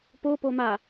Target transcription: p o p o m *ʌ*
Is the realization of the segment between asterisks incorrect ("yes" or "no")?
yes